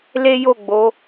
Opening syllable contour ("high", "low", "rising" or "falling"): high